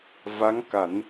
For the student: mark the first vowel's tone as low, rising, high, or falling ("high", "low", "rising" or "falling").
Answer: rising